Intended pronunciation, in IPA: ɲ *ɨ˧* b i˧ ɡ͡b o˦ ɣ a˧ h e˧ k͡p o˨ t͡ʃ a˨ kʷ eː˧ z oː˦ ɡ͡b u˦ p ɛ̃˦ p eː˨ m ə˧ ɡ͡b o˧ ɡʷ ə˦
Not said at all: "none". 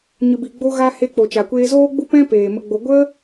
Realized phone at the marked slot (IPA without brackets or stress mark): ɨ˧